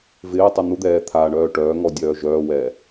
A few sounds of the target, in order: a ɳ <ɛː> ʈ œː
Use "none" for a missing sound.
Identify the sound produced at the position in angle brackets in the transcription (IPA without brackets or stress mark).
œː